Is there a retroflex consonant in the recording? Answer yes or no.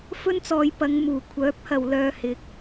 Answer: no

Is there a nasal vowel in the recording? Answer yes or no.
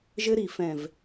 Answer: yes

